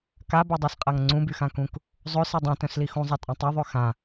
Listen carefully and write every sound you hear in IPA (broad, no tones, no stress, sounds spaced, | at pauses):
k a b œ dˤ œ s qʼ a ŋ ŋ͡ǀ ũ b y x ã k ũ k | zˤ ø s i dˤ ĩ t œ̃ s l i x ũ zˤ a tʼ ã tˤ œ ðˤ ø x ã